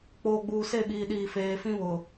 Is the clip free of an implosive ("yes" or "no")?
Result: no